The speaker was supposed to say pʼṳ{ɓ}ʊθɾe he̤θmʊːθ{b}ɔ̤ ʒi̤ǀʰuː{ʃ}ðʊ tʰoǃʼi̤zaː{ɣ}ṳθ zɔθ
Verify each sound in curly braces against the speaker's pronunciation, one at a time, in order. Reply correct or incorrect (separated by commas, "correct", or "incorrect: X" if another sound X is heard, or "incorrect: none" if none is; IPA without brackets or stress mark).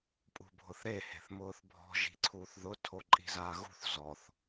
incorrect: bʱ, incorrect: bʱ, incorrect: θ, correct